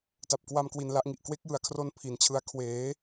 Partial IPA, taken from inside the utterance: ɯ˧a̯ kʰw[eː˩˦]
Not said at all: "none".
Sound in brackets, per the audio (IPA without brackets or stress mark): eː˩˦